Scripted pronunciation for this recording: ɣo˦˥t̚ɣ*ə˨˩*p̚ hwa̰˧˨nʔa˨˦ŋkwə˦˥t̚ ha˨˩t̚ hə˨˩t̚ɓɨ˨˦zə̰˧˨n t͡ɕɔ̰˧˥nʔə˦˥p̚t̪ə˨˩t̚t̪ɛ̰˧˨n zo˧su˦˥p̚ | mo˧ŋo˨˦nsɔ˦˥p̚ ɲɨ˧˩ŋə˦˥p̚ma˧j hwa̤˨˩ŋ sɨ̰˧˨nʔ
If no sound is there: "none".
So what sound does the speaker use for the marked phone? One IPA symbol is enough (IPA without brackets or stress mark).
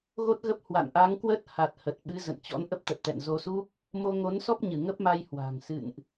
ə˦˥